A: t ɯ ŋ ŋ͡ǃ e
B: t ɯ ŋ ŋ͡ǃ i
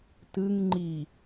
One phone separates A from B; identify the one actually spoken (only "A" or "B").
B